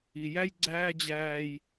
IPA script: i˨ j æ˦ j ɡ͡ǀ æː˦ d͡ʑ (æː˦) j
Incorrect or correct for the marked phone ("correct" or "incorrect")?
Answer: correct